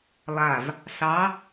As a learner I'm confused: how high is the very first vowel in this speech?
low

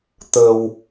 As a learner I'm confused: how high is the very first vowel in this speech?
mid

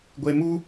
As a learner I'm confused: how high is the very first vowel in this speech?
mid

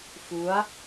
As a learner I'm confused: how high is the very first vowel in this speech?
high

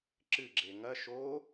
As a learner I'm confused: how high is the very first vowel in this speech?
high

